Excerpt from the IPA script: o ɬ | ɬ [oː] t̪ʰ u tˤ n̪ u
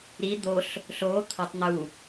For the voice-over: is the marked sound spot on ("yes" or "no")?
yes